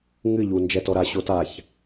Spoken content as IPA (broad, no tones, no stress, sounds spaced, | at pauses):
ŋ ɨ ʎ u n d͡ʒ ɛ t ɔ ɾ a ɕ o t a ç